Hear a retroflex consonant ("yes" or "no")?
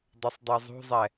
no